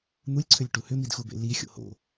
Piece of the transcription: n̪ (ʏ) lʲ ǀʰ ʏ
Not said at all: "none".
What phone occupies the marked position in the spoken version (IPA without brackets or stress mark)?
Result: u